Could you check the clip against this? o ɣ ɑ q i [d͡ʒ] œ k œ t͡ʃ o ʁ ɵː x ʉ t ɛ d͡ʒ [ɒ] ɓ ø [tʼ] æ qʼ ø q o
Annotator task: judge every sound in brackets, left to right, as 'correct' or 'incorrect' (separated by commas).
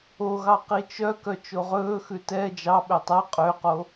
incorrect, incorrect, incorrect